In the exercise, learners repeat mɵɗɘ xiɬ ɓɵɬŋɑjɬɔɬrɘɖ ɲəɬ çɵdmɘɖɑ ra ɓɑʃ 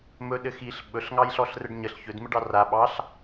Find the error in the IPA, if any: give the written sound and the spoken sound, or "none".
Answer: ʃ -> ɬ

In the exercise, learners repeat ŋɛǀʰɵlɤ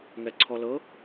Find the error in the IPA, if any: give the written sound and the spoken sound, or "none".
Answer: ɵ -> ɔ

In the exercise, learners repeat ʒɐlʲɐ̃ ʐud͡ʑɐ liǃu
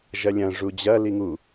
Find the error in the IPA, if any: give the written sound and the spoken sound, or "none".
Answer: ǃ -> ŋ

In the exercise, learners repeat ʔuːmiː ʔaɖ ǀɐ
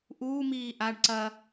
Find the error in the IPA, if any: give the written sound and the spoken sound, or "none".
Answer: none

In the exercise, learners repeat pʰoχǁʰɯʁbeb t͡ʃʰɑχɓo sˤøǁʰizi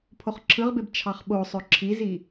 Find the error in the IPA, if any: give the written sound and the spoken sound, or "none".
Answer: none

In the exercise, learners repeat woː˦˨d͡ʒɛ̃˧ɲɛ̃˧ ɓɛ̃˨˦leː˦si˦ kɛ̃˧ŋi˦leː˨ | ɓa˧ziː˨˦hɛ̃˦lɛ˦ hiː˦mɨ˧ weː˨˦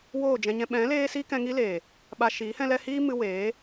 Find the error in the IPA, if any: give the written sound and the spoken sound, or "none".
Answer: z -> ʃ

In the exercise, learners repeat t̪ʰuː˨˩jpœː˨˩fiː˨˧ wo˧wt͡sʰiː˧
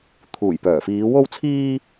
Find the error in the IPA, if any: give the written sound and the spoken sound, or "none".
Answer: none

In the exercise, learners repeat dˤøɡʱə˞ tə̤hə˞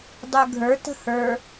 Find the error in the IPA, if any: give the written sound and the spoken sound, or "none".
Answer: none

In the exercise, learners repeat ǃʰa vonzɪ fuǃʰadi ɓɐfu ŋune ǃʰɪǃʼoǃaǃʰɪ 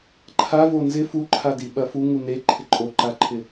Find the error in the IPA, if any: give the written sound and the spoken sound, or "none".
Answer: none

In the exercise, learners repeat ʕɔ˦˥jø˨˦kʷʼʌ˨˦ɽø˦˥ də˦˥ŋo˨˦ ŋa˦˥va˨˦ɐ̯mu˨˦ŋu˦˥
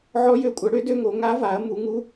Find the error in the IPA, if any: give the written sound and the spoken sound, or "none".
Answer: ə˦˥ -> ø˦˥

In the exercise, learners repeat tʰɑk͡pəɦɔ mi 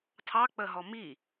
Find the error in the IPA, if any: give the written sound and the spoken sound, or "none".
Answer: none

